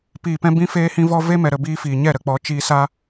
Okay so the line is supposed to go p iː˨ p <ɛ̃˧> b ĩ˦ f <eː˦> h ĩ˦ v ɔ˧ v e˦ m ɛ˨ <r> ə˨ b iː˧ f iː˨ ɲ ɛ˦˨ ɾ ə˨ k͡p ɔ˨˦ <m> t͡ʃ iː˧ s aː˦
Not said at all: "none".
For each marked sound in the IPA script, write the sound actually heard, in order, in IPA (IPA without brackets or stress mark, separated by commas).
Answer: ɛ̃˧, eː˦, ɾ, none